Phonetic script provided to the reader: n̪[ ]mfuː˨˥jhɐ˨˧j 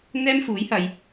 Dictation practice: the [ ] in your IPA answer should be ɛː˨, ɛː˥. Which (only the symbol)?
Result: ɛː˥